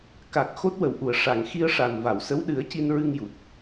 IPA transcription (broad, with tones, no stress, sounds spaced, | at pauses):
k a˨˩ k̚ x o˦˥ t̚ w ə˨˩ w ʔ u˨˩˨ ə̯ ʂ a˨˩˨ ŋ x i˧ ə̯ ʂ a˨˩ n v a˨˩˨ w s ə˧˥ w ɗ ɨ˨˩˦ ə̯ c i˧ n ɹ ɨ˧ ŋ j u˨˩ t̚